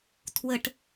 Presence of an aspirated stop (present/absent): present